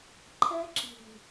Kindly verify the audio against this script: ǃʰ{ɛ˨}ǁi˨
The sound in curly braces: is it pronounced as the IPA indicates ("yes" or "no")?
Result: no